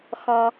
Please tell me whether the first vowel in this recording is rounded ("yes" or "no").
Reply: yes